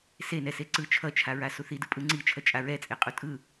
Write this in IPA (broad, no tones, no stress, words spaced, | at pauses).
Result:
senɛse ǀɯ t͡ʃʰʌt͡ʃʰaɹa suθidɯ pʼɯŋ͡ǀit͡ʃʰʌ t͡ʃʼaɹɛt͡sʼe qʼutʼɯ